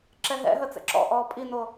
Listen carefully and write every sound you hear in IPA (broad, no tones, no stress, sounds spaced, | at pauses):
ǁ ɛ ɦ ɛ̰ ɦ ə t͡s ɛ̰ ǁ ɔ̰ ʔ ɔː pʼ i n o